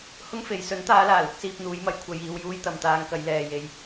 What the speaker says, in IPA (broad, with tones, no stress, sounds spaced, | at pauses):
h ʊ˥ ŋ f e˨˧ j s ɵ˨˥ n t̪ aː˨˧ l aː˨˩ l ʊ˧ k̚ s iː˧ p̚ n̪ uː˨˧ j m ɐ˨˧ j kʷʰ ɐ˨ j iː˨ w j uː˥ j t̪ ɐ˨ m t̪ aː˧ ŋ k ɐ˨˧ j l ɛː˨ j e˨ j